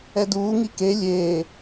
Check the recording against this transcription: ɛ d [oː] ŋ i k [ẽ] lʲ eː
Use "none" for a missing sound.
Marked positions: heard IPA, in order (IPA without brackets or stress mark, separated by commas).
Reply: uː, e